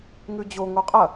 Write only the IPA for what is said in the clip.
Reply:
ŋʉd͡ʑo ŋoqʼɐ

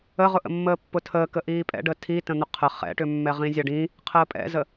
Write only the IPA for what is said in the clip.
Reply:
əʁʊʔə̰ mːəːpːʊtʰəː kəʔiːpʼɛ̰ɖə tʰi tə̃n̪ʊqʰə χɛ̰ʈʏmːɛʁĩ zʲaɖĩ | qʰəːpʼɛ̰zə

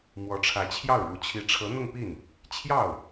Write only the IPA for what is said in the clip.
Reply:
mwɔ˧˥ʈ͡ʂʰä˧˥t͡ɕʰjɑ˥˩ʊ̯ɻu˧˥ t͡ɕʰi˧˥ʈ͡ʂʰɤ˧˥n̪ʊ˥˧ŋpi˥˩n | t͡ɕʰjɑ˥˩ʊ̯

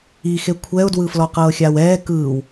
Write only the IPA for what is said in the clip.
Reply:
ixe kʷʰɛʊ̯dwɯflɔ qɤːxʲawɛː kɯːw

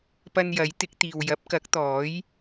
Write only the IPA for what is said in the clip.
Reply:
pɐ˧njɐ˨˥jt̪ɪ˨˥k̚t̪iː˨w jɐ˨˥p̚kɐ˨˥k̚ t̪ɔː˨˥j

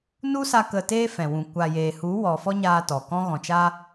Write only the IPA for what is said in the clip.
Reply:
nu˦sa˧ kə˧teː˦fɛ̃˨wũ˨ kʷa˨jeː˨hu˨˦wɔ˨ fɔ˦ɲaː˧ tɔ˨kɔ̃˦ ɣɔ̃˨t͡ʃa˧

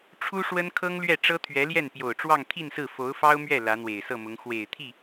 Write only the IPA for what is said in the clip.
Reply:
ʈ͡ʂʰu˥ʂwə˥nkʰɤ˥ŋlɥɛ˥˩ ʈ͡ʂɤ˥t̪ʰɥɛ˧˥ljɛ˥˩n pjo˨˩ʊ̯ʈ͡ʂwɑ˥˧ŋt̪ʰi˥˧nsɹ̩˥˩ fo˧˥ʊ̯fɑ˥ʊ̯mɥɛ˥˩ lä˧˥n̪we˨˩ɪ̯sɤ˥˩mʊ˧˥ŋ xwe˨˩ɪ̯t̪ʰi˥˩

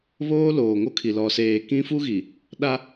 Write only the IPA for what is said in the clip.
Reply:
βoː˦loː˨ŋo˦kʰi˨ lɔ˨seː˨ kĩ˦fu˦ɣi˨ | ɗa˦

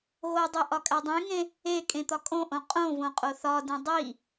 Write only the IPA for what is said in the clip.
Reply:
ɣodˤe ʔɒkʼædˤẽŋẽ | e kʼẽt̪ɒkʼõʔõ qʼõvõ qʼoθɒdĩ dˤi

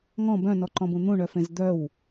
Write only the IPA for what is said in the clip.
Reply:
ŋɔ̃ bœ̃nɔǃɔ̃bũ n̪ũɳœfẽz d̪œw

